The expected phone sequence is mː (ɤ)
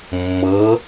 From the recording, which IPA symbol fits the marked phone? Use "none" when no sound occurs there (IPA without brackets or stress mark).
ɤ